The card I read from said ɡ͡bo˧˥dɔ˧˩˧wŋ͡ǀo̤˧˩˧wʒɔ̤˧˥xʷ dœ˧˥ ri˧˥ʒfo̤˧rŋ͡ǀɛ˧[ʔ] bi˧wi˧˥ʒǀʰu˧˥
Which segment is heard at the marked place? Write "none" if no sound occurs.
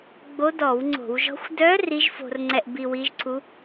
ʔ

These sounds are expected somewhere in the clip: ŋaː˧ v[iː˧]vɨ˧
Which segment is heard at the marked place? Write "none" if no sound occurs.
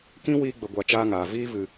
iː˦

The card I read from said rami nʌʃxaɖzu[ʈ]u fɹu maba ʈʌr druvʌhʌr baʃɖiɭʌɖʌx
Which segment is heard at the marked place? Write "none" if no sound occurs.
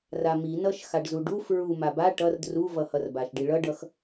ɖ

